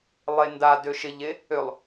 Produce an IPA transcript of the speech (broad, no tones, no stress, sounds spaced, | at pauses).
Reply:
lˠ e n d a d ø ʃ ɪ ʎ e | ø lˠ